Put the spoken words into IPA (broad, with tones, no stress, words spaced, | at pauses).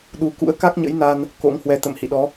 ɗu˨˦ kṵ˧˥ə̯ka˦˥k̚ɲə̰˧˥jna˧n | ko̰˧˥ŋhwɛ˨˦ t̪ə̰˧˨m hḭ˧˨ɗɔ˨˦